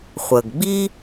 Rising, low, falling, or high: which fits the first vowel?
low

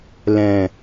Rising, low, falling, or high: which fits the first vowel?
low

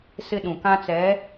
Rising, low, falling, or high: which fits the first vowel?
high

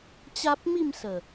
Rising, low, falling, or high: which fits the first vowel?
high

